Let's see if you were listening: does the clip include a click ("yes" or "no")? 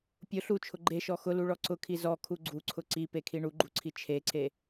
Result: yes